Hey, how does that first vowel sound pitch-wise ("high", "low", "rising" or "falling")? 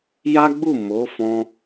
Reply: high